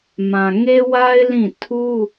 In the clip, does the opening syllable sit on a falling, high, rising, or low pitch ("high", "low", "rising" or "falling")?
low